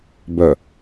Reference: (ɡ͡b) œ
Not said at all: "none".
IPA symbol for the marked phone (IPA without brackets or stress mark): b